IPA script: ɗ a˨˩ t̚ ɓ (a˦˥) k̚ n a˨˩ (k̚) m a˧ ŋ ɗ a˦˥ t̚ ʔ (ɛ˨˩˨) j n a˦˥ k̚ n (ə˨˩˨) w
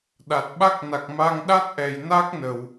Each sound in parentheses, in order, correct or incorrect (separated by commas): correct, correct, correct, correct